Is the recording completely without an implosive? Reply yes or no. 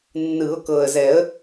yes